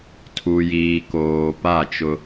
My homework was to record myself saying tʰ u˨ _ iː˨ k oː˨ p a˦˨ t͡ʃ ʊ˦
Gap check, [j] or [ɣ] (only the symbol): j